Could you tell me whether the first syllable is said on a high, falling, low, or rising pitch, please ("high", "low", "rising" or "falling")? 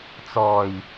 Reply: low